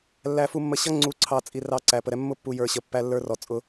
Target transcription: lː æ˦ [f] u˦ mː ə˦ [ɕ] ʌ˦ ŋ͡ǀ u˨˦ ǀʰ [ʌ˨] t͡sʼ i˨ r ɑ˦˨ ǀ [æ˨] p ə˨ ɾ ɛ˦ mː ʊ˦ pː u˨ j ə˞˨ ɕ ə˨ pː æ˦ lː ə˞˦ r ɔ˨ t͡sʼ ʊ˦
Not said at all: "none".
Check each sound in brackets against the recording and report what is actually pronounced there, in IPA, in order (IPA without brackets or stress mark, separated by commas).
f, ɕ, ɑ˨, æ˨